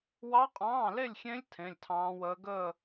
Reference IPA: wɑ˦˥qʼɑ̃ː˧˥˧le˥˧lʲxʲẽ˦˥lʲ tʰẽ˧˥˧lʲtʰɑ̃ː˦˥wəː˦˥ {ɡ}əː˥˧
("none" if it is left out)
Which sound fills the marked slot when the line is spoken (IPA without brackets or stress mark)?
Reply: ɡ